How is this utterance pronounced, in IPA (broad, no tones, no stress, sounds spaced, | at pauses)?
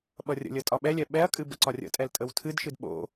ɓ ʌ rʲ ə̰ lʲ ə tʼ ɒ ɓ ɛ lʲ ɛ ɓ ɛ ɐ̯ kʼ ɨ b ə̰ ǀ ɒ rʲ ə̰ tʼ ɛ l tʼ ə w tʰ ɨ d ʃ ɨ d ɓ o̰